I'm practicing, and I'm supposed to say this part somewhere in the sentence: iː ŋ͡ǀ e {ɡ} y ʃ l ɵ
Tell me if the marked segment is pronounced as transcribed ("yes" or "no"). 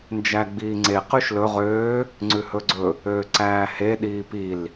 no